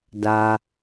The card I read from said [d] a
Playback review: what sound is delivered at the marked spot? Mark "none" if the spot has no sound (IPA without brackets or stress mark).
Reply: d